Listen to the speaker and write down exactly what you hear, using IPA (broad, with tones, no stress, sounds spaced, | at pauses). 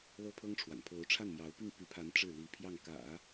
l ɤ˥ pʰ ɤ˥ ŋ ʈ͡ʂʰ w a̰˨˩ n pʰ o˧˥ ʊ̯ ʈ͡ʂʰ a˥˩ n m j ɑ˧˥ ʊ̯ p i˥˩ ŋ p y˧˥ pʰ a˧˥ n ʈ͡ʂ ɻ̩˥˩ l i˧˥ pʰ j ɑ˥˩ ŋ k ä̰˨˩˦